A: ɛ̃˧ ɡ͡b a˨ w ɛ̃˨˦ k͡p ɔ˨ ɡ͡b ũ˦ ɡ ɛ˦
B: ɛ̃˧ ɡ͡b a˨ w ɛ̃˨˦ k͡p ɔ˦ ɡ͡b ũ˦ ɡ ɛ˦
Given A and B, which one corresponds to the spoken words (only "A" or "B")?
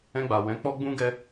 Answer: B